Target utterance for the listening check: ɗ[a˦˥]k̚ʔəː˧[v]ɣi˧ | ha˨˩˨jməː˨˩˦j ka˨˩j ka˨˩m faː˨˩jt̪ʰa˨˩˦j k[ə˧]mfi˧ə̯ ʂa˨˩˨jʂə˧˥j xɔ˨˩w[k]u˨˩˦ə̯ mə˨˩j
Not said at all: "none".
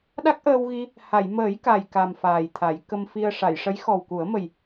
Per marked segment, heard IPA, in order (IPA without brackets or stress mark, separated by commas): a˦˥, w, ə˧, k